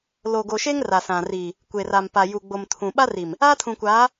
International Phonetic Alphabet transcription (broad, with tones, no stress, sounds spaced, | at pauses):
l o˨ ɡ o˨ ʃ e˦ ŋ r a˨ s ã˨ r i˨ | kʷ eː˨ r a˨ m p a˨ j u˨ ɡ͡b o˨ m tʰ ũ˨ ɓ a˦ r i˨ m | aː˦ tʰ ũ˨ kʷ aː˨˦